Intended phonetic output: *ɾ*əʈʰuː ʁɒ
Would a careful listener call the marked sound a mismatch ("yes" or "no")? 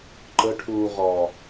yes